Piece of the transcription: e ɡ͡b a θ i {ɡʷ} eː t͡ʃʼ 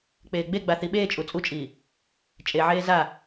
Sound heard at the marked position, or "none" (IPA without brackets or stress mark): ɓ